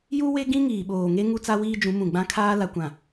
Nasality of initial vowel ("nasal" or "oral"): oral